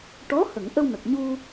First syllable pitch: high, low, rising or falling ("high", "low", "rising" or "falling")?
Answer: rising